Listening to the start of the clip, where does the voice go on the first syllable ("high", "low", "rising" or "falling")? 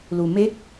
low